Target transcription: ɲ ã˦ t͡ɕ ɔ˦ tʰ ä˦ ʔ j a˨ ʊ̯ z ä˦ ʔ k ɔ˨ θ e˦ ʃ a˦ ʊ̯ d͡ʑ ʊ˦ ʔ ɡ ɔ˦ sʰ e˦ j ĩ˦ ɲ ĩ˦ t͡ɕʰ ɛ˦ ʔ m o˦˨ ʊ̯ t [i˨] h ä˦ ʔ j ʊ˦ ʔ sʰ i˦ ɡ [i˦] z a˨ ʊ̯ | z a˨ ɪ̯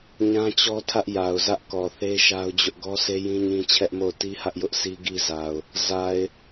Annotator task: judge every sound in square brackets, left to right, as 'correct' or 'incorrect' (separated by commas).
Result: incorrect, correct